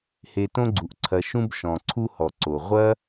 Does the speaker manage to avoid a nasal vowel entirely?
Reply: no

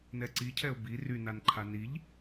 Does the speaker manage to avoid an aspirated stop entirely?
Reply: no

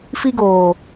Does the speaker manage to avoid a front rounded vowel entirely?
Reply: yes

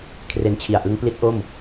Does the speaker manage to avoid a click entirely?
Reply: yes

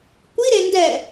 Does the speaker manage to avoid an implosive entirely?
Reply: yes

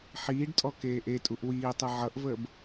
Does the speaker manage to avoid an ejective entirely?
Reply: no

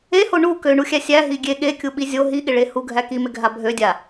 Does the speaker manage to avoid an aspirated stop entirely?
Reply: yes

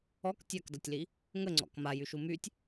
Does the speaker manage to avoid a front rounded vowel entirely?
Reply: no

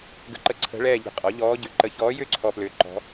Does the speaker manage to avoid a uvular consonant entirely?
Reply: no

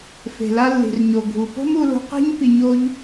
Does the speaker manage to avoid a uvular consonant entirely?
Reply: no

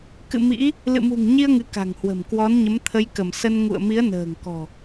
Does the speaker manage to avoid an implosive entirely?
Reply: yes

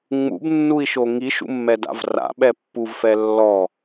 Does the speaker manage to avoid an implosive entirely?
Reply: no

